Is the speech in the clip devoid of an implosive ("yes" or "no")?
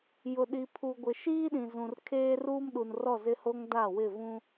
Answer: no